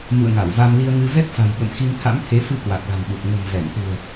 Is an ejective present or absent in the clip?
absent